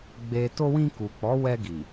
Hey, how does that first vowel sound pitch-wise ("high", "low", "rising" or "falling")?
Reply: low